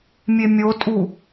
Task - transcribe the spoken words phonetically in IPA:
mʲ e mʲ o tʼ u

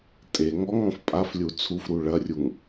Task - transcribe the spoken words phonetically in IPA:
tʼ e ŋ ɔ ŋ ɔ̃ f pʼ a f lʲ u t͡sʰ u f ɾ u ɭ ɐ rʲ u ŋ

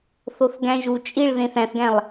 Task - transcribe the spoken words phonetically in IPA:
θ o θ ɡ æ̃ ʒ u t͡ʃʼ i ɭ ð ẽ θ æ̃ θ ɡ æ̃ lˠ

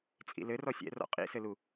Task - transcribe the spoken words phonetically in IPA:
t͡sʼ ḭ l ɘ r ɔ sʲ ɛ̰ r ɔ̰ qʼ ḭ s ɘ l u

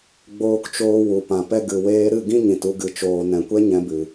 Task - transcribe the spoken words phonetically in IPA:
ɡ͡b oː˧ k t͡ʃ oː˧ w u˨ p ã˨ p ɛ˦ ɡ ɨ˨ w eː˧ ɾ ɨ˦˨ ɡ ĩ˦ ɲ ĩ˨ t u˧ ɡ ɨ˨ t͡ʃ oː˨ n ɛ̃˨ kʷ ɛ˦ ɲ ɛ̃˧ b ɨ˨

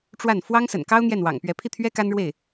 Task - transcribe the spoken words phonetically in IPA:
ʈ͡ʂ w a˥˩ n f w ɑ˥ ŋ s ə̰˨˩ n k ɑ˥ ʊ̯ n̪ j ɛ˥˩ n w ɑ̰˨˩ ŋ p ɥ ɛ˧˥ pʰ i˥˩ t̪ʰ ɥ ɛ˥ k a˥ n ɻ w e˥˩ ɪ̯

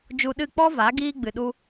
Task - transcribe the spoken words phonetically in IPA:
d͡ʒ u˧ ɗ ɨ˦˨ k͡p ɔ˦ v a˨˦ ɡ iː˦ ɡ͡b ɨ˨ ɗ u˦

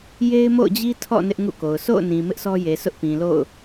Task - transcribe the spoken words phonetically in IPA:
j e˦ ɪ̯ m o̰˦˨ ʊ̯ d͡ʑ i˦ tʰ ɔ̰˦˨ n ɪ˦ ʔ ŋ ṵ˦˨ k o˨ ʊ̯ s o̰˦˨ ʊ̯ n ĩ˨ m ɪ˦ ʔ s ɔ˦ j e˨ sʰ ʊ˦ ʔ p ĩ˨ l o̰˦˨ ʊ̯

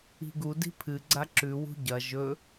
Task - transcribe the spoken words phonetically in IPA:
i̤ ɡ u d i̤ pʰ ɨ ɡ͡ǀ a ǁ ʉ w ṳ ɟ ɐ ʒ ɵ

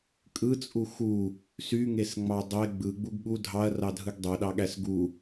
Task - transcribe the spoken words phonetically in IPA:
kʼ ɯ t͡sʼ u x u | s y ŋ e s ŋ͡m ɑ dˤ e ɡ͡b ɯ ɡ͡b u ɡ ɠ u dʱ ɑ ɐ̯ r ɑ dʱ ɯ ɡ dˤ ø ɗ ɑ ɠ æ s ɡ u

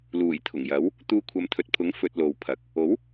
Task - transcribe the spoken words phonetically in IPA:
l uː˨˩ j t̪ʰ ʊ˨˩ ŋ j ɐ˨˥ w | t̪ uː˧ kʷʰ ɐ˨˧ m t̪ʰ ɵ˨ t̚ pʰ ʊ˨˥ ŋ f ɵ˧ t̚ l o˨ w pʰ ɐ˨˥ k̚ | o˨˥ w

